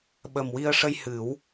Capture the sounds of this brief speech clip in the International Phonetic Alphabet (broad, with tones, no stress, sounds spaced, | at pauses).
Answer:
ɓ ə˨˩ m w i˧ ə̯ ʂ ə˧ j h ɨ˨˩˦ w